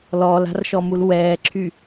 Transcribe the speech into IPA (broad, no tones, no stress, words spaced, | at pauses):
lɔːla̤rʃɔmul wɛːǁʰy